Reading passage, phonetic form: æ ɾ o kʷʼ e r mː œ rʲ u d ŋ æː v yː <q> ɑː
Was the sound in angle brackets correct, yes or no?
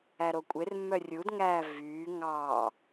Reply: no